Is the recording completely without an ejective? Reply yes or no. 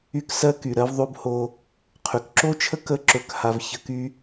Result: yes